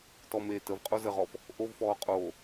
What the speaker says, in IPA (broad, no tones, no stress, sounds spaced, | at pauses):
t ɔ m eː t ə v qʼ o z ə ʁ ɔ f | ʔ o v f ɔː qʼ oː